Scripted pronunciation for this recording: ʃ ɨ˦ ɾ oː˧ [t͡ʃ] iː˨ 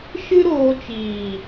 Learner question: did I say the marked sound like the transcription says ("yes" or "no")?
yes